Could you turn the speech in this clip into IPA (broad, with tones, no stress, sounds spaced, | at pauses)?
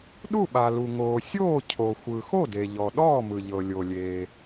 ɗ u˥˩ ɓ a˩ l u˩ ŋ oː˩ sʲ oː˥˩ cʰ o˩ xʷ ɯ˩ x o˥˩ d e˩ ʎ ɔ˩ ɗ ɔː˥˩ m ɯ˩ ʎ ɤ˩ lʲ o˩ lʲ eː˩